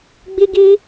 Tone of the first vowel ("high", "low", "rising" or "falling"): high